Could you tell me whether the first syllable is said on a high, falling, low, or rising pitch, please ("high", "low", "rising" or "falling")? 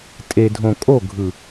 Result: low